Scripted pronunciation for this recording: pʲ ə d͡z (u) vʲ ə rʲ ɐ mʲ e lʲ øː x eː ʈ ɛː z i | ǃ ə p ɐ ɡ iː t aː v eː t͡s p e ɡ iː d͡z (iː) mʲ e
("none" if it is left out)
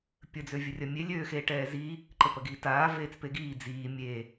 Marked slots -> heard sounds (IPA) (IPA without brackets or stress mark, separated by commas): ø, iː